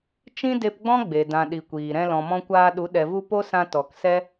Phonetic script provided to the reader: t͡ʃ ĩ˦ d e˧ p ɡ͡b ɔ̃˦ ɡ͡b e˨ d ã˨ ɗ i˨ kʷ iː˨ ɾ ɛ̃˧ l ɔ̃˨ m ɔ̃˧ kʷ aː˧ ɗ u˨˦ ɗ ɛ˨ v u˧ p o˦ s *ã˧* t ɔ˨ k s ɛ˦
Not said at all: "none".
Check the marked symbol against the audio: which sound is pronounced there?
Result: ã˧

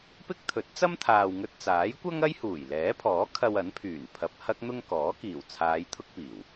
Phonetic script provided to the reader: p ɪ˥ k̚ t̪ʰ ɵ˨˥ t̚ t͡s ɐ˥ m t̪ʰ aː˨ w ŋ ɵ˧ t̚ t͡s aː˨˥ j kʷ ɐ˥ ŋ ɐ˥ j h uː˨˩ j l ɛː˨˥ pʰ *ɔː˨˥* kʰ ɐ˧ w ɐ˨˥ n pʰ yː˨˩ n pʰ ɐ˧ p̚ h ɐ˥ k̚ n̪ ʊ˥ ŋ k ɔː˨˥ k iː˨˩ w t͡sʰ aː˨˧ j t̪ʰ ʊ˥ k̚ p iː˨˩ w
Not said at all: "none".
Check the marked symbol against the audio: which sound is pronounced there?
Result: ɔː˨˥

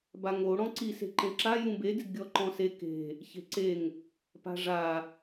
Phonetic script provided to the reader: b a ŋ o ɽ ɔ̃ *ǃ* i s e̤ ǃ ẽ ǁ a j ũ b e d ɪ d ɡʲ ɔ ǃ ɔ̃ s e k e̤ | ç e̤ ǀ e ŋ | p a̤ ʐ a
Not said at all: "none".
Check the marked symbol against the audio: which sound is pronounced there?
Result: ǀ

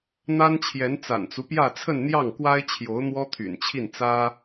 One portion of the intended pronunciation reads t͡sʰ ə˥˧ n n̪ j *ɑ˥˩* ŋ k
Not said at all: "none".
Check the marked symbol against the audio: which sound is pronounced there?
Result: ɑ˥˩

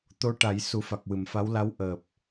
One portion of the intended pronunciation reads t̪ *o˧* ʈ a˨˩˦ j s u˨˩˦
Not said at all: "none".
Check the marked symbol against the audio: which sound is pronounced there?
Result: o˧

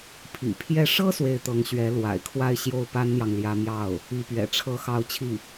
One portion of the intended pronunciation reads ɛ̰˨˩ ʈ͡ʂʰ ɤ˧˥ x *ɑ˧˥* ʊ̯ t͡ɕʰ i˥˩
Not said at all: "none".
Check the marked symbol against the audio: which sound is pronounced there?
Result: ɑ˧˥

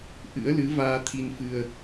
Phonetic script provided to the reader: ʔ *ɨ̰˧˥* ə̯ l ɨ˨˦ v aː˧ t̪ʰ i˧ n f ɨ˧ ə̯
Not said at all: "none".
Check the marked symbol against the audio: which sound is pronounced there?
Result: ɨ̰˧˥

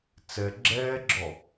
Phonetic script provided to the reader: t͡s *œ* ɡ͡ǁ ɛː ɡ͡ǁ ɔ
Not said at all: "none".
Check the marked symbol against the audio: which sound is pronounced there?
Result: ɛ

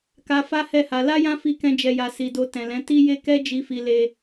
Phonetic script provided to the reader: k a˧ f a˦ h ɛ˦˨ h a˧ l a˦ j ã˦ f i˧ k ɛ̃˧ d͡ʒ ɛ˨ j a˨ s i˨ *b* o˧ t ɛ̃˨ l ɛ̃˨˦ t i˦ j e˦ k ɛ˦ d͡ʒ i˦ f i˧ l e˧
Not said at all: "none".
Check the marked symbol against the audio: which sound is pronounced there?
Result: d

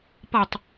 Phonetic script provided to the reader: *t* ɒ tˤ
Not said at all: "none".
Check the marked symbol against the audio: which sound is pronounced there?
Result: p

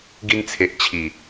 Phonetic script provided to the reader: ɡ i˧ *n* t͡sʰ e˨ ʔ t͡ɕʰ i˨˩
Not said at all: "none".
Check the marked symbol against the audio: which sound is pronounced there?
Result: n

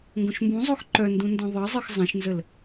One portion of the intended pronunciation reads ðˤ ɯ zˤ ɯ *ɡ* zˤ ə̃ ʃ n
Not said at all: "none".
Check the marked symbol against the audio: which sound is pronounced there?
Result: x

